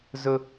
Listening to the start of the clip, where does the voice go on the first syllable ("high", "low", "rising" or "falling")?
high